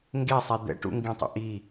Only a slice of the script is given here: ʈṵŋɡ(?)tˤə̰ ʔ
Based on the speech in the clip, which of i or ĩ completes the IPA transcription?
ĩ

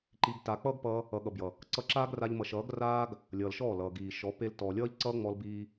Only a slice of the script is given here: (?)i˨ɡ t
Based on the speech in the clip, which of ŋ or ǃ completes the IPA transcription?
ǃ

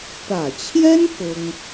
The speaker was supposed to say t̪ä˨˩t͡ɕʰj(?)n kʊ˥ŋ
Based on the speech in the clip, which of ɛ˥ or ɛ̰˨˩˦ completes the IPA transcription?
ɛ˥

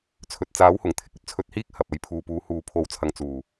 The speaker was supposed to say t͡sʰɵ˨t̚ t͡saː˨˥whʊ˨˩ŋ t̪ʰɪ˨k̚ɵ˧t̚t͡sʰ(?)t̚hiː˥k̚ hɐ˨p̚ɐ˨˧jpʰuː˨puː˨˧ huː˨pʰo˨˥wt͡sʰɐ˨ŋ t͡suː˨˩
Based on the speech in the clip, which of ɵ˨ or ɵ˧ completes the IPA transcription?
ɵ˧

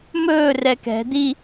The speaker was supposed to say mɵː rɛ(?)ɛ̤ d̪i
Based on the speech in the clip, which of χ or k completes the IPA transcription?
k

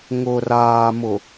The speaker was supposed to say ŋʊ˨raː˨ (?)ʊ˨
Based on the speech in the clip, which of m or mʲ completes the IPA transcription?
m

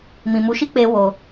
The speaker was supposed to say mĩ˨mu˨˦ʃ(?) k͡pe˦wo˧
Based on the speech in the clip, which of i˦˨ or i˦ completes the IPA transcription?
i˦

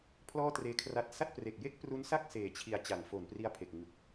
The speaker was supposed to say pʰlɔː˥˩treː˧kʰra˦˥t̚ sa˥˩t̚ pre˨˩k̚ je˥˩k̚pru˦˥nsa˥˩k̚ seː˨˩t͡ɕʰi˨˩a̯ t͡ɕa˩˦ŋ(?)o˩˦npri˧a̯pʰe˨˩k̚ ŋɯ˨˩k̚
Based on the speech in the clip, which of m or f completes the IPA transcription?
f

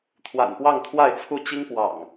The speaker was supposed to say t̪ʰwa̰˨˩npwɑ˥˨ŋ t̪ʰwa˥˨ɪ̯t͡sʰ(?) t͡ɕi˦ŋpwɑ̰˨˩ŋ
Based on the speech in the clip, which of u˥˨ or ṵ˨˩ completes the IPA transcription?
u˥˨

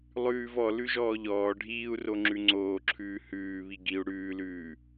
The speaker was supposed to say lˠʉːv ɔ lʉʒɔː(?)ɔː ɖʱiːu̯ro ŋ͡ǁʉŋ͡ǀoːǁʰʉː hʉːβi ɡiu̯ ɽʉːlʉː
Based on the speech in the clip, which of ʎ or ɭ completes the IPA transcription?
ʎ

